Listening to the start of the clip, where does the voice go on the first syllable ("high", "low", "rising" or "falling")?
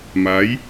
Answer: rising